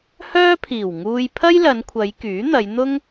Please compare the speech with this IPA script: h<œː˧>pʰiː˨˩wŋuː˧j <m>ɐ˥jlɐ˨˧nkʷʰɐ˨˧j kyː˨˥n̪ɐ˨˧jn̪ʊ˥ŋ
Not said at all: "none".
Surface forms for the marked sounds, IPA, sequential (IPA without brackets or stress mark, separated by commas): œː˥, pʰ